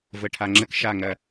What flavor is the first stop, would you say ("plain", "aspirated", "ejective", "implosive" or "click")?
aspirated